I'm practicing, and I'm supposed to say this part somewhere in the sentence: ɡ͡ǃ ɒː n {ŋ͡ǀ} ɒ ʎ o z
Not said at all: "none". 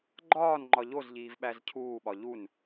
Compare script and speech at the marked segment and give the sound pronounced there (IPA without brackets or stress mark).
ŋ͡ǃ